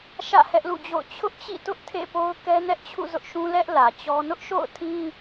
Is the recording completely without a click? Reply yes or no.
yes